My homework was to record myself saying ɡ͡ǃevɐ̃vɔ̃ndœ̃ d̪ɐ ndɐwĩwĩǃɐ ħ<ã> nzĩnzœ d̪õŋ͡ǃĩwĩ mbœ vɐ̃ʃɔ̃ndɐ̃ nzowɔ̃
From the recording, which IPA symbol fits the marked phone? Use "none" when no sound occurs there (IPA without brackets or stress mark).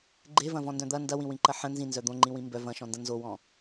ə̃